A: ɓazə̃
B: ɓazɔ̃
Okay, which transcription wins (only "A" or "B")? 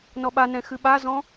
B